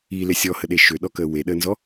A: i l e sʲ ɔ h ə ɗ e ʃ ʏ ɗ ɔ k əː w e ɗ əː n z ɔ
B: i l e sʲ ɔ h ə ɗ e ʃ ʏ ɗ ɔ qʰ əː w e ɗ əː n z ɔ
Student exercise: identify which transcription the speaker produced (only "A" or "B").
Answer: A